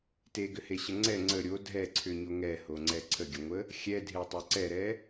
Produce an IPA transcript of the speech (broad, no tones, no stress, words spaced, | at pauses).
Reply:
teɡʏheɕə ŋ͡ǀɛ ŋ͡ǀə ɾʲo dʱɛǀʰʏɲo ŋɛhoŋ͡ǀɛ ǀʰəɡʲəŋʷə | xʲɛdʱetˤɛ ǀɛɾɛ